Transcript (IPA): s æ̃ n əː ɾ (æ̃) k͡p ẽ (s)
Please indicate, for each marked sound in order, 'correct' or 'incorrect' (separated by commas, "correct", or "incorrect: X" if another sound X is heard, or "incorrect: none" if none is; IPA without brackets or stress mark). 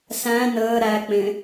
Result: incorrect: æ, incorrect: none